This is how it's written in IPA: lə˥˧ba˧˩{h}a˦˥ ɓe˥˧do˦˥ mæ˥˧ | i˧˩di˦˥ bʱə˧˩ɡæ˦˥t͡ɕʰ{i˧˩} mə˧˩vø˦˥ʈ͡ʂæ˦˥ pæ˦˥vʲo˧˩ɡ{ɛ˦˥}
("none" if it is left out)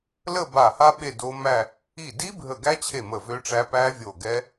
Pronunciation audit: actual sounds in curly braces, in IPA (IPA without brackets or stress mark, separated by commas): h, e˧˩, ɛ˦˥